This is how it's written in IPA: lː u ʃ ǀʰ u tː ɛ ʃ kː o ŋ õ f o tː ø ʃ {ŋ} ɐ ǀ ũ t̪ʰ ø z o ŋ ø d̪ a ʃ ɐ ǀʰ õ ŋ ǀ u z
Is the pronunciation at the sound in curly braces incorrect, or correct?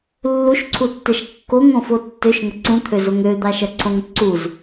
correct